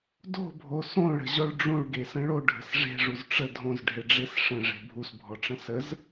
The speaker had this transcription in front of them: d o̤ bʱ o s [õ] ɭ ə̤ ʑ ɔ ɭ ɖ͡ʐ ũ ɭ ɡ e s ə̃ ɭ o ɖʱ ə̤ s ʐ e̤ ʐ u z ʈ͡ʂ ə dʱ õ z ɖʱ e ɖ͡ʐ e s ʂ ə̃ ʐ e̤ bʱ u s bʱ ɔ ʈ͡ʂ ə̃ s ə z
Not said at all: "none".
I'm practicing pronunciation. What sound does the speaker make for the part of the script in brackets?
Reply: õ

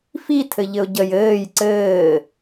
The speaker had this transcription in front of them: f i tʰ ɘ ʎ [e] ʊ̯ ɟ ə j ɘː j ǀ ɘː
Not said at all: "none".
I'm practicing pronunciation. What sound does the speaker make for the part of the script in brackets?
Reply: ɘ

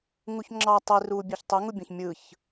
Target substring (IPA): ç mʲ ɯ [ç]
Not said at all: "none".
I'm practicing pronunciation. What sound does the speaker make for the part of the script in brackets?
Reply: ç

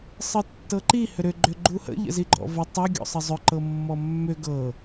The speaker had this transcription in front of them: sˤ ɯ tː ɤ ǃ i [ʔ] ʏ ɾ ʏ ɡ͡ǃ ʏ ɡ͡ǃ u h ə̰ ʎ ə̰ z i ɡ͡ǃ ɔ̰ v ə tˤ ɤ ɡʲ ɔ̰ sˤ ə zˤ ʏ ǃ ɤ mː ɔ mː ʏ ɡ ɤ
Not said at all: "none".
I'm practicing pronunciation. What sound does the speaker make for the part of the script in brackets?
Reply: h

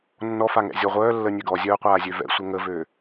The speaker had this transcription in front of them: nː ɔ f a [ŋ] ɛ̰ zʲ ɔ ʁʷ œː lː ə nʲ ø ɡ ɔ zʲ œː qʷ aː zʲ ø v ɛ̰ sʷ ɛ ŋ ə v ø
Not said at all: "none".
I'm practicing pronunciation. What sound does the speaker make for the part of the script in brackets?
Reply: ŋ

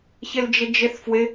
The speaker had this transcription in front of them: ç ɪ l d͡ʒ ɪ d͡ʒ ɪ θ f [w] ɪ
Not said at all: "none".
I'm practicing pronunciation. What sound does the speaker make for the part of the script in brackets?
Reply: w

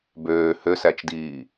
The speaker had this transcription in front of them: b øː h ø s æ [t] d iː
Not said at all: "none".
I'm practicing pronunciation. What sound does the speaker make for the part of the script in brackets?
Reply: t͡ʃ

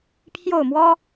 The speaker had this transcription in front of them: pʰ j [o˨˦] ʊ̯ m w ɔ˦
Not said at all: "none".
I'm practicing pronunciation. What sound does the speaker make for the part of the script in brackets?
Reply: o˥˨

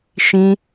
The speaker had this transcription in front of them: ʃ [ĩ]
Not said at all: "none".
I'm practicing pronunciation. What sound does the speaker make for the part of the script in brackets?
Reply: ĩ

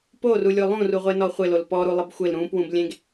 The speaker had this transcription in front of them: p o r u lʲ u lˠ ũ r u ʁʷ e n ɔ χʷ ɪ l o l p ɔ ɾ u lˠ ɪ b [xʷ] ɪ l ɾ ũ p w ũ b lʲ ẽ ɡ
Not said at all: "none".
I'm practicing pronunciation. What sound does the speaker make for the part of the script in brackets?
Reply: xʷ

